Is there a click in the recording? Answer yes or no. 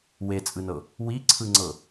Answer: yes